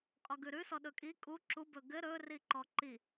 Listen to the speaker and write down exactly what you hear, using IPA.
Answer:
qʼɔɡʉɾʉ sɔɗɵkʼi kʼu ǁu bɵɡɘ ɾɵ riǃɔǃi

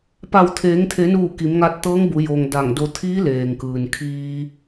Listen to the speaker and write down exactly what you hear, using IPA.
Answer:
pa˧˩w t̪ʰeː˩˧ŋt̪ʰe˩˧nuː˧˩ ki˩˧mŋa˧t̚t̪ɤː˧˥ŋbu˩˧ jo˩ŋ da˧˩ŋdo˧ t̪ʰiː˧˥leː˩ŋkɯː˩n kʰiː˧

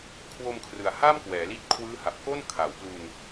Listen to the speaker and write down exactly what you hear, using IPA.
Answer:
kʰwo˧mkʰrɯ˨˩a̯ha˥˩mkwɛː˩˦ li˦˥t̚kʰwɯː˦˥ ha˨˩p̚ko˥˩n kʰa˩˦w plu˧n

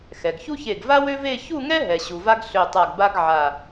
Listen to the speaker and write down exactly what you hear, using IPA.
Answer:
xɛ˩ɡçu˥çe˧˩ɡ va˥wø˥ve˥˧ çu˥˧ŋɛ˥ɦɛ˩ ɕu˩va˥ɡ ɬø˧˩tˤa˧˩ɡba˥ɡ ʕa˧˩

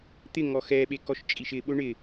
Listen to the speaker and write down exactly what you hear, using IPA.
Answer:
t̪ɪ ŋɔxɛɓe kɔʃt͡ʃʼiʃɪɓʊ ɳɪ

